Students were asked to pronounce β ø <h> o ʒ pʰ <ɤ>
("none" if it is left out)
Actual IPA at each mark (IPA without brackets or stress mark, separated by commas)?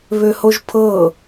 h, ɤ